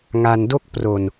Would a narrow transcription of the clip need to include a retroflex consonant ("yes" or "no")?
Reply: no